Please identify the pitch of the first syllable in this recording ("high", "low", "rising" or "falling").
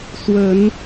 rising